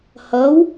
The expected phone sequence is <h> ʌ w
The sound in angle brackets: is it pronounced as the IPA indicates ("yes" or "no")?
yes